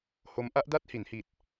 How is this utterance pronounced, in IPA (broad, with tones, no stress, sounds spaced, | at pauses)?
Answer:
h o˦˥ m ʔ a˦˥ ʔ d a˥˩ t̚ h i˩˦ n h i˨˩ t̚